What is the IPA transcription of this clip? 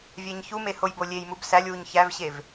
vʲ æ ɲ ç u m e h o j b o lʲ e j m u b s æ lʲ w u ɲ ç æ v ɕ e v

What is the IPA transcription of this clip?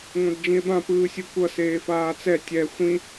ŋʷ ã d d͡ʒ ĩ e̯ b ã p ɯː sʲ u kʷ ʌ s eː f aː t͡s ɛ tʲ ɛ xʷ ĩ

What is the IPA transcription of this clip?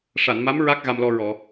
ʂ a˨˩˨ n m a˧˥ m ɹ a˦˥ k̚ ɣ a˧ m l ɔ˧ ɹ ɔ˨˩˨

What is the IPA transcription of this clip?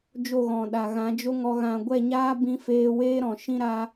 d͡ʒ o˦˨ ɣ ɔ̃˨ ɗ a˨ ɣ ã˨˦ d͡ʒ o˦ ŋ ɔ˧ ɣ ã˨ ɡʷ ɛ˦˨ ɲ aː˦ b ĩ˦ f eː˦ w eː˦ ɾ ɔ̃˨ ʃ ĩ˦ ɾ a˦

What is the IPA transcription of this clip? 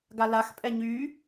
ɡ a l a x pʼ ɛ ɲ y

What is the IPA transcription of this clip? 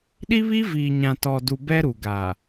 ɗ i˦ β i˦ v iː˨ ɲ ã˨ t ɔ˨ d u˨ b ɛ˦ ɾ u˨ ɡ aː˨

